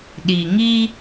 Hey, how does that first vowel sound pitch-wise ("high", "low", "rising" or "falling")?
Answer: low